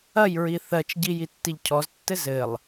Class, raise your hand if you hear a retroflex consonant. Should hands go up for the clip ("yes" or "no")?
no